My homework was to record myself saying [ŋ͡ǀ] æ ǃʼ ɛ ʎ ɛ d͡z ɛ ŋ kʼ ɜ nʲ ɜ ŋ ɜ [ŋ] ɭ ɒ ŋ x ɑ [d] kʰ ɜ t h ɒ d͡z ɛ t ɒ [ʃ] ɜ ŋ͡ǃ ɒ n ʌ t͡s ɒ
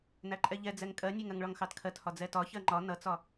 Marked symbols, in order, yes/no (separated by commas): no, yes, no, no